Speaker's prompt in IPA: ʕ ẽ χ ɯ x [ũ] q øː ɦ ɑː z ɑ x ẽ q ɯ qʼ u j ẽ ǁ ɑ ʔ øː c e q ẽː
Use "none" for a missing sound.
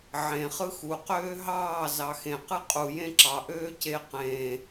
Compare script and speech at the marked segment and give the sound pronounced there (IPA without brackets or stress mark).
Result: u